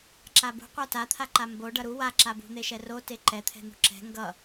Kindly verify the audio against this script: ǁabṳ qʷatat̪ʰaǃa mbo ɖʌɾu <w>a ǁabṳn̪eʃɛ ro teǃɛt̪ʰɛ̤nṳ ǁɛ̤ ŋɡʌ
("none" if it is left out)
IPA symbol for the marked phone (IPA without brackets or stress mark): w